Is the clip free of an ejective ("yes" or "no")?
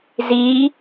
yes